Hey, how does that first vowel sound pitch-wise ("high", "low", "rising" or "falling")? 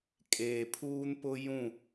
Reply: low